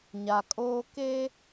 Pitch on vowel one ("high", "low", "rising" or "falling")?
low